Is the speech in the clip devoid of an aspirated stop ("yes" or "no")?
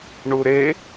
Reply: yes